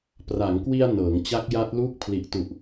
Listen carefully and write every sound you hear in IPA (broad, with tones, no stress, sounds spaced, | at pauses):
p r a˩˦ ŋ k w i˧ a̯ n ɤː˩˦ ŋ t͡ɕ a˦˥ k̚ j a˦˥ t̚ l uː˥˩ k̚ pʰ l i˨˩ ʔ t u˨˩ ʔ